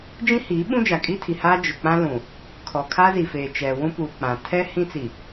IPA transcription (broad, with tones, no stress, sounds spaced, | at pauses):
d͡ʒ ĩ˦ h iː˨˦ ɓ ũ˦ d͡ʒ a˨ kʼ i˦ tʰ i˨ h aː˦ d͡ʒ ʊ˨ k͡p ã˦ l ũ˨ | kʰ ɔ˨ kʰ a˦ z i˨ f eː˨ t͡ʃ ɛ˨ w ũ˦ p uː˨ k͡p ã˨ tʰ ɛ˦ h ĩ˦ t͡s i˨